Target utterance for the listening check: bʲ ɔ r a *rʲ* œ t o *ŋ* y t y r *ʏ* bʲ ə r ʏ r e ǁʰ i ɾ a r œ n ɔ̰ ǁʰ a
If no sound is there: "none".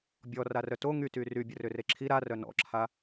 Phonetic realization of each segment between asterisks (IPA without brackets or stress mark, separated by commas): r, ŋ, y